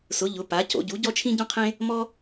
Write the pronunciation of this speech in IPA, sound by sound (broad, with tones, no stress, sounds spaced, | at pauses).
s ʊ˨˥ ʎ ʊ˨˥ p a˨˥ c o̰˨˥ ɟ u˨˥ ɟ ɔ˥ t͡ʃʰ ĩ˥ ɟ ɔ̃˥ qʰ ẽ˥ | m ɔ˥